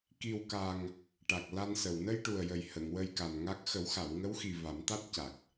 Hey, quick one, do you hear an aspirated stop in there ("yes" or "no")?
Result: no